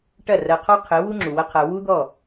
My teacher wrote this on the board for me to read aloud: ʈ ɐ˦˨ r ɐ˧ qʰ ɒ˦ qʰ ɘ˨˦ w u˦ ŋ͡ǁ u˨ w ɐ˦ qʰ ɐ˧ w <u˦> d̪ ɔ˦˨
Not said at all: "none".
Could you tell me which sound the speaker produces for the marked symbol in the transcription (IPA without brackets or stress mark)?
u˦